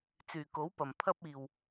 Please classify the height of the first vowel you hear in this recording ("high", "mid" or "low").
high